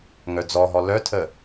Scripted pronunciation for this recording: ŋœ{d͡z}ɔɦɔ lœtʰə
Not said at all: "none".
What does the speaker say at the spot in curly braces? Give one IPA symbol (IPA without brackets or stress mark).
d͡z